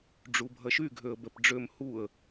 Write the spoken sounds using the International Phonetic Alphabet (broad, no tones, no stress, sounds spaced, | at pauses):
ɖ͡ʐ u bʱ ɐ ʃ y ɡʱ ø ə̯ b ɛ p ɖ͡ʐ ø m h u ə̯